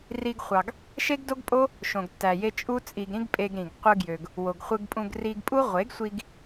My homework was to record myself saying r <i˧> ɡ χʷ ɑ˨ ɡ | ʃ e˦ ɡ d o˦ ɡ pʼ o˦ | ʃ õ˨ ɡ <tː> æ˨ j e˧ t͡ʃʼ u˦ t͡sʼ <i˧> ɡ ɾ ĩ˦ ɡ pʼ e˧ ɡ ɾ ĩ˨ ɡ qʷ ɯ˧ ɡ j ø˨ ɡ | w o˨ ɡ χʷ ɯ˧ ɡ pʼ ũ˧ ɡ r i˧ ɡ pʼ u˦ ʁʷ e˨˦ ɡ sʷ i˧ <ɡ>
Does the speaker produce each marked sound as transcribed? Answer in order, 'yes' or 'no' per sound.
yes, yes, yes, yes

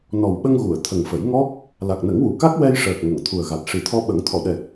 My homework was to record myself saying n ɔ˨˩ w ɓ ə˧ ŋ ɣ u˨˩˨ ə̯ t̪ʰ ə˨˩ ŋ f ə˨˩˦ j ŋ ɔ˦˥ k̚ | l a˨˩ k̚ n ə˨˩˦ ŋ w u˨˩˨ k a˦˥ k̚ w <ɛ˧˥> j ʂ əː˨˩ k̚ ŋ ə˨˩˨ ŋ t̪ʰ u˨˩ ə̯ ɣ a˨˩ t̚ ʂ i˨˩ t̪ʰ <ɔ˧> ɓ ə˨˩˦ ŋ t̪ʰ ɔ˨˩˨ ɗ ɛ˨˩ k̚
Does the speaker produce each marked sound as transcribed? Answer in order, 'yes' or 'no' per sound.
no, yes

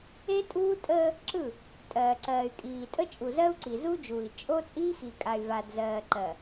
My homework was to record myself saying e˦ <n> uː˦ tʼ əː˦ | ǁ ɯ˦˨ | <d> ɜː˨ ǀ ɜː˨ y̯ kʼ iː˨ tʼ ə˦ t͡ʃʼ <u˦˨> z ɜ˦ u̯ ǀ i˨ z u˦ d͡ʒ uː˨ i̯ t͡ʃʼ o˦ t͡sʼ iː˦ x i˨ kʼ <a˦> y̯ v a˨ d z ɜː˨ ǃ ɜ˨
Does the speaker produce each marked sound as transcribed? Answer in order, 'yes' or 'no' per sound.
no, no, no, no

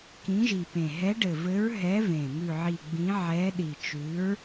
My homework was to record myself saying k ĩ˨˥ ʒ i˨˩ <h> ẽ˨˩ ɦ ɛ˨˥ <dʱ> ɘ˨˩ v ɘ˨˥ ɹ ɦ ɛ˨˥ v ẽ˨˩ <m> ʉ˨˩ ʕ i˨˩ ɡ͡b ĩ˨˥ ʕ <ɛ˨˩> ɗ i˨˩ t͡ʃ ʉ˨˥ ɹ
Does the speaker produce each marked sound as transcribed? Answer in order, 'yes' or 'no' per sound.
no, no, yes, no

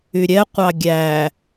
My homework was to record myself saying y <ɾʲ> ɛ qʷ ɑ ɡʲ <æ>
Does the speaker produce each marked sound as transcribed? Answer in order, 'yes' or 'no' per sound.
yes, yes

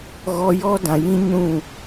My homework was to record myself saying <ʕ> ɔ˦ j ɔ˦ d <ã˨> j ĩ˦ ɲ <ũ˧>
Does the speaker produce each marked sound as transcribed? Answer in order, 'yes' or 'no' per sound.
no, yes, no

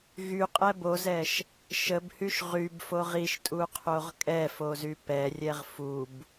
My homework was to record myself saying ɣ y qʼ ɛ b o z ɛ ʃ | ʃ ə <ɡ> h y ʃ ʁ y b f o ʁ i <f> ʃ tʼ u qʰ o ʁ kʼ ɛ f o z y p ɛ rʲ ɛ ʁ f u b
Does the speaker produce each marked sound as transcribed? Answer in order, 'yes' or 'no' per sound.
no, no

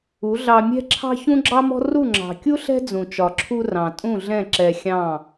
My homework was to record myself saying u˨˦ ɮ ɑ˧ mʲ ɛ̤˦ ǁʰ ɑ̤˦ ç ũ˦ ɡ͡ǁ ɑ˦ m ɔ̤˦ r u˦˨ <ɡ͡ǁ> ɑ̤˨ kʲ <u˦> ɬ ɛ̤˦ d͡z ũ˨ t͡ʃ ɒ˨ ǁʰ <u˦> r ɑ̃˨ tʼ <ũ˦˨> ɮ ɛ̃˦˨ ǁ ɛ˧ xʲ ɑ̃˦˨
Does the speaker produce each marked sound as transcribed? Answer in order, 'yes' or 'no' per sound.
no, yes, no, yes

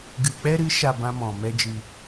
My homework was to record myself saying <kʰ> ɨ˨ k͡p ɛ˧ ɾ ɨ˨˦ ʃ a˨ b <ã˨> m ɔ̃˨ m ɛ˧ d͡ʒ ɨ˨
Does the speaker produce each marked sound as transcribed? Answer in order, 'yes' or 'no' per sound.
no, no

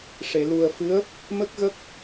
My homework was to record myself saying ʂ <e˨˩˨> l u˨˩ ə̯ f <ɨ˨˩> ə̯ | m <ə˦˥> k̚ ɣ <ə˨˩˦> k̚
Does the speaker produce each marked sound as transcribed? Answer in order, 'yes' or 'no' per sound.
yes, no, yes, no

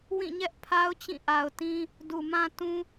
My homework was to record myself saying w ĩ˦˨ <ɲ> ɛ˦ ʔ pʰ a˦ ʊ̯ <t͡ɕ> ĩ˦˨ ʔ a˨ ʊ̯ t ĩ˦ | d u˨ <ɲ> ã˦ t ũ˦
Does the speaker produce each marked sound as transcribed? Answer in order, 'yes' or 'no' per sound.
yes, yes, no

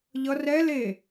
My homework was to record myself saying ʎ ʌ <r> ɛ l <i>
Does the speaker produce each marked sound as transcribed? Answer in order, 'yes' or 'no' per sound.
yes, no

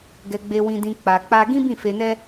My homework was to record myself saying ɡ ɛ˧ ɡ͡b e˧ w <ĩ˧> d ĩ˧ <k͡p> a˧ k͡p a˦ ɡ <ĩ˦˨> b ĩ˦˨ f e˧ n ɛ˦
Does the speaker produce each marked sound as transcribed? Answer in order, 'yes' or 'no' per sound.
yes, yes, no

